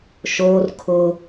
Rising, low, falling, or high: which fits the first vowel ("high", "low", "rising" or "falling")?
high